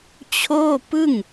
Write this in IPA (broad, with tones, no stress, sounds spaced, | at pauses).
t͡ɕʰ oː˥˩ p ɯ˥˩ ŋ